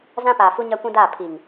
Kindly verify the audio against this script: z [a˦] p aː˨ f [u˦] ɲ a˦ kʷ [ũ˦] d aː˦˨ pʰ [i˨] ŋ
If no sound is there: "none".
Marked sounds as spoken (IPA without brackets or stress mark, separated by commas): ã˦, u˦, ũ˦, i˨